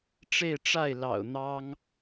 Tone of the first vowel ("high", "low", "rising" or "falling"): falling